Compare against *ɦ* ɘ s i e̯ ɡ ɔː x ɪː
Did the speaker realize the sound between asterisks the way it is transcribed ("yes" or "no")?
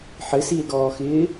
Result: no